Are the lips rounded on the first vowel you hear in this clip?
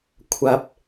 no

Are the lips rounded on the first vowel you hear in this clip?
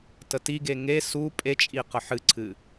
no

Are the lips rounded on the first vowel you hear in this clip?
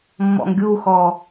yes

